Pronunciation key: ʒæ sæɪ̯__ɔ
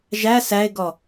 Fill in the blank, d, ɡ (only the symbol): ɡ